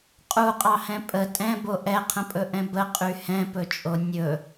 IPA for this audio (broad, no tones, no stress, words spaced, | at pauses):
qʼuqʼɑhɛ̃ pʼə tʼɛ̃bo ʔɛqʰə̃pʼɵʔɛ̃ bəqʼy hɛ̃pɵt͡ʃʼo nʲɵ